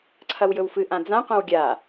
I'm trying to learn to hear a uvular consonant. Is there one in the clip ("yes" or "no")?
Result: yes